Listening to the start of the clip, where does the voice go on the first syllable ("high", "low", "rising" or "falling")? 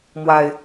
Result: low